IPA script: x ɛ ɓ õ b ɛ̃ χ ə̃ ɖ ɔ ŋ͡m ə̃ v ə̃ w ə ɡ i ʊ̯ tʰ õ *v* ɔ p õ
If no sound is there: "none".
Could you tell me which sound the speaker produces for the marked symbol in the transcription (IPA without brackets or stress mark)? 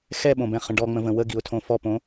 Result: f